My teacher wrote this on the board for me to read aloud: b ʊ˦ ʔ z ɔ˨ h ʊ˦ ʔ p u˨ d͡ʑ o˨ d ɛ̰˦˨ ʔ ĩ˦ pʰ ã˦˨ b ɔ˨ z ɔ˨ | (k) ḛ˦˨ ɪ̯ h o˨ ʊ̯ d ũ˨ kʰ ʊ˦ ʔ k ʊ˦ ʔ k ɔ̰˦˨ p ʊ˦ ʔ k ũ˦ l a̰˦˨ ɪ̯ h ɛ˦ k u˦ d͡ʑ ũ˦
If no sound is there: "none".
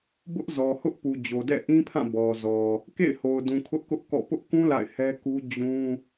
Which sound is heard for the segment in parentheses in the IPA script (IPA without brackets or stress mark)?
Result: k